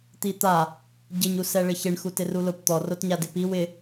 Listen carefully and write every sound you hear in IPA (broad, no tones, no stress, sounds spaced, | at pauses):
t̪ i t̪ a | ɟ ɪ ɲ u s ɛ ɭ ɪ ç ɪ ɳ x u t ɪ r u l ʊ p t̪ ɔ r o t ɲ a d ɪ p i w ɪ